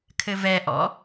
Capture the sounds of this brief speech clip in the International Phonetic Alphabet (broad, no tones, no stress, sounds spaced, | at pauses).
kʰ ɘ v ɛ ʔ ɔ̰